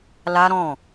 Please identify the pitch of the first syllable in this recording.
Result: high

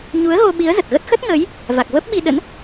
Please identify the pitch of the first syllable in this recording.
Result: rising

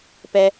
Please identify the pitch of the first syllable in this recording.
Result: low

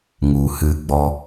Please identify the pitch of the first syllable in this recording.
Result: low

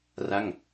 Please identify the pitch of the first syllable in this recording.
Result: falling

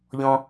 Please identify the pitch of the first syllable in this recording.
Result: low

